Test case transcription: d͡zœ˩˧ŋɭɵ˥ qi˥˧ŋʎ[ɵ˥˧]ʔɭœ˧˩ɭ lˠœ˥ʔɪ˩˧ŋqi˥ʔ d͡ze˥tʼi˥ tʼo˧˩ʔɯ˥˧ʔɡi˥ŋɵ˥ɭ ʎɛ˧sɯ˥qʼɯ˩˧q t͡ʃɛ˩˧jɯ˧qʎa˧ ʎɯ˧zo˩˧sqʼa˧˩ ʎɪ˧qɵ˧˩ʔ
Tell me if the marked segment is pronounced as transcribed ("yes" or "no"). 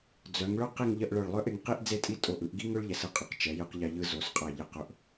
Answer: no